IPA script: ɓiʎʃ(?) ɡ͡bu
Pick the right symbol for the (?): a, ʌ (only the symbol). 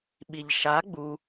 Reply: a